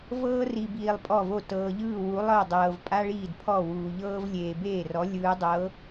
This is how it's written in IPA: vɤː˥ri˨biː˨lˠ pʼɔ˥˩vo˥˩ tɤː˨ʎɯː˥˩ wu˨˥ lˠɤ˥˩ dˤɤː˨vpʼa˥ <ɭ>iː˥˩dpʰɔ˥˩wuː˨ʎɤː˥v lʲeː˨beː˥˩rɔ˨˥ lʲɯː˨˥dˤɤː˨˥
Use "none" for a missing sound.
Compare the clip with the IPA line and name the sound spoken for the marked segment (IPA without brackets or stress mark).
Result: ɭ